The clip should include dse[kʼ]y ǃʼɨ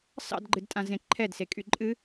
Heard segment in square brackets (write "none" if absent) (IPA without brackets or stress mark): kʼ